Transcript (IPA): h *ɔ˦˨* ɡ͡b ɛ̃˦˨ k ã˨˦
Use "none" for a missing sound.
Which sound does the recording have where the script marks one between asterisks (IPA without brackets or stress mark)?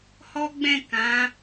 ɔ˦